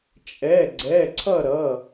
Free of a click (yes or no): no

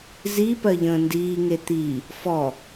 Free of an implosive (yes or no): yes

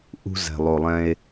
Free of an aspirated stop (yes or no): yes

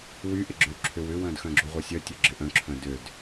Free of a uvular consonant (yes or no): no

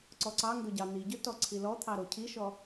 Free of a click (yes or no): no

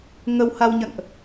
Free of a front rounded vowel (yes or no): yes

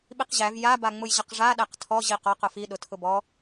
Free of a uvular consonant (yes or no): no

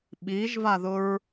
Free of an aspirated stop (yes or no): yes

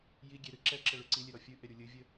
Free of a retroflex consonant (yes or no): no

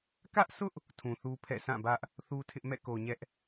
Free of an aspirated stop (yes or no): no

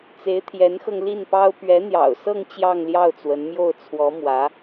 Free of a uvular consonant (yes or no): yes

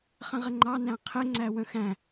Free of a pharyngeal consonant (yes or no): yes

